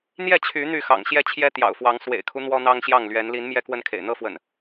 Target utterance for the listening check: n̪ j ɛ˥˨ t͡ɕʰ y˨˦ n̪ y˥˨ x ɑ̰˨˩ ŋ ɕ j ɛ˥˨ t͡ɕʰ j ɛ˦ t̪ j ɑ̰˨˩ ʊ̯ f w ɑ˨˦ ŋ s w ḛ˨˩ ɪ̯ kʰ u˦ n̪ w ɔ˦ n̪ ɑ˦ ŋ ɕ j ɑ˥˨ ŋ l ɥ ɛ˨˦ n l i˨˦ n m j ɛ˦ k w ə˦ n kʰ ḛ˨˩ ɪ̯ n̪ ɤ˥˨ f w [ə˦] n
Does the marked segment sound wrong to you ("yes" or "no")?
yes